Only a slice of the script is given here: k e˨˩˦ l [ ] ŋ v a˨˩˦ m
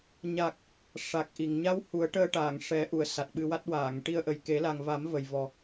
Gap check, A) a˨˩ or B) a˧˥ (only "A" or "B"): A